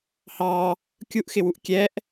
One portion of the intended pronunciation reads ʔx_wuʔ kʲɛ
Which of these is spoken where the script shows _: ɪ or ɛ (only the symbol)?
ɪ